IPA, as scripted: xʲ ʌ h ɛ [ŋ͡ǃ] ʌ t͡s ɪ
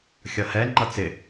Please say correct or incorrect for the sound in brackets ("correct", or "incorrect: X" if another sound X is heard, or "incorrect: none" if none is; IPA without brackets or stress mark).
correct